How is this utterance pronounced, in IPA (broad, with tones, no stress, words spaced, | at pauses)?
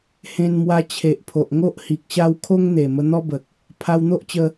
hẽ˧nmwa˧t͡ɕʰe˨ʔ pʰo˨ʔŋo˦ʔ hi˨k̚ɕa˥˧w kʰo˦ŋn̪e˨˩ mə˧n̪ɔ˦bə˨k̚ | pʰa˧wn̪o˦ʔt͡ɕə˧